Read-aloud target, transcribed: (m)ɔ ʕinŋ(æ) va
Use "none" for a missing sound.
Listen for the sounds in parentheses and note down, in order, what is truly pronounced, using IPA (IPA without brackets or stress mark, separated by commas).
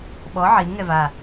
ɓ, ɛ